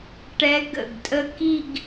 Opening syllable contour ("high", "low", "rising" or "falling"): rising